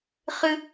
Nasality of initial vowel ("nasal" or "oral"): oral